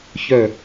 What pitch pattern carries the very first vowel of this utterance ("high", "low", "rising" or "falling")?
falling